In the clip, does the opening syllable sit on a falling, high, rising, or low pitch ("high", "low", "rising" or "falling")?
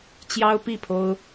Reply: high